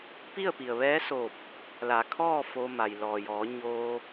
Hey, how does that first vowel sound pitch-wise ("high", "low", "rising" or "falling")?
falling